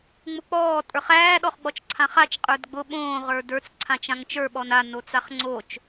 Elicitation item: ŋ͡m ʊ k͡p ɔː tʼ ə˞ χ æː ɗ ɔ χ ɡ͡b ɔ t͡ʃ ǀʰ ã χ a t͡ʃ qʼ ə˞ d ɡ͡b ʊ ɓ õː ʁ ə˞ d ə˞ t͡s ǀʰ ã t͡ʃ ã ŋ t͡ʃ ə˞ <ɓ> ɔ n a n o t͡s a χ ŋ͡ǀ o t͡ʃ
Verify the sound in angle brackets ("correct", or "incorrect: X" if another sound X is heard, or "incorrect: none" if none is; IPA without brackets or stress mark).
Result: correct